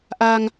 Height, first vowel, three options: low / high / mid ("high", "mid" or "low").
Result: low